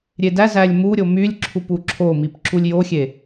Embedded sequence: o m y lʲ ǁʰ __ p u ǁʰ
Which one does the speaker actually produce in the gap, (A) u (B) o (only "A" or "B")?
A